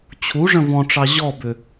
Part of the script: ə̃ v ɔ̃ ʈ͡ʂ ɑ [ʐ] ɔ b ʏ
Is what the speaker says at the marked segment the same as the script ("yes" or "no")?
no